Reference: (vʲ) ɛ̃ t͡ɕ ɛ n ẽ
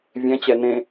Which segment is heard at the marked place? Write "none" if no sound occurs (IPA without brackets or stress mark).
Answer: vʲ